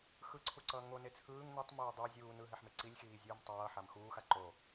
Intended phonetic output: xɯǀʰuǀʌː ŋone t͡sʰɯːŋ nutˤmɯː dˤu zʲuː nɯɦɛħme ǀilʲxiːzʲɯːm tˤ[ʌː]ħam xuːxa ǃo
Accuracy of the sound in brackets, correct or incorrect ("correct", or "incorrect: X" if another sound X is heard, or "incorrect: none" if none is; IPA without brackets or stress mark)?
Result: correct